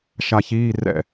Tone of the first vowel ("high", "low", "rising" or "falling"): low